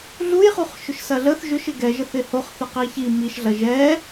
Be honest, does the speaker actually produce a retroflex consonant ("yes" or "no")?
no